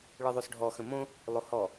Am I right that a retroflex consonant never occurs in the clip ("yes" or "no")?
no